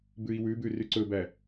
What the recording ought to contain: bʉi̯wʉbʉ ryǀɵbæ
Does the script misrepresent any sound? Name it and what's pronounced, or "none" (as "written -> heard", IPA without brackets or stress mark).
none